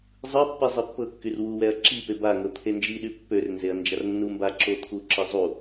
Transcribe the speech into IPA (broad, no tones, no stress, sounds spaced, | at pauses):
zˤ ɯ pː i zˤ i pː ɤ kː y r w u w ɛ ɐ̯ ǁ i p e b a ŋ ɤ t̪ʰ e n d͡ʒ i ɗ y pː ø r n z e ɐ̯ n d͡ʒ a r nː u m b a ǁ o t̪ʰ u ǁ ɯ zˤ u